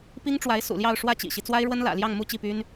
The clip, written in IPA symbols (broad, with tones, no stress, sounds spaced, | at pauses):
p i˥ ŋ ʈ͡ʂ w a˧˥ ɪ̯ s ṵ˨˩ l j ɑ˥˧ ʊ̯ ʂ w ä˥˩ t͡ɕ ḭ˨˩ ɕ i˦ t͡s w a˥ ɪ̯ ɻ w ə˥ n l ä̰˨˩ l j ɑ˥˧ ŋ m u˥˧ t͡ɕ i˥˩ p y˥ n